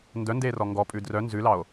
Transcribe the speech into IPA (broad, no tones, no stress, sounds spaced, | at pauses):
n d œ n d eː r ɔ ŋ ɡ ɔ pʼ ʉ d r œ n z ʉ l ɑ o̯